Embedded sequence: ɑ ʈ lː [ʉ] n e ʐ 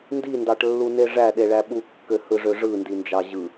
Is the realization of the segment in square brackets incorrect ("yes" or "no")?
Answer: yes